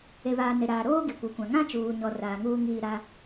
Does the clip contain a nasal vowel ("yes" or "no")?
yes